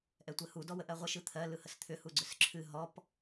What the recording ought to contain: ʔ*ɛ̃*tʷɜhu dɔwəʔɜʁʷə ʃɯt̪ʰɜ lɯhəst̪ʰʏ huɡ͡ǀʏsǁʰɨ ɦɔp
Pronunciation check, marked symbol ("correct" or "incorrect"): incorrect